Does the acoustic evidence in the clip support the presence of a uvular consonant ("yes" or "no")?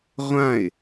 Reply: yes